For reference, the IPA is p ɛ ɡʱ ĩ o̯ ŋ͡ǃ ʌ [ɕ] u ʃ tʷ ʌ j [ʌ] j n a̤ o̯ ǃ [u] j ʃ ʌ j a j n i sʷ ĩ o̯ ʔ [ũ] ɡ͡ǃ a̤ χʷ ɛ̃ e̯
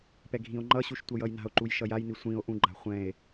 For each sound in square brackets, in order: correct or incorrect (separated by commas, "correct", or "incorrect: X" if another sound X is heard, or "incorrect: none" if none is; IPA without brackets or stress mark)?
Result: correct, correct, correct, correct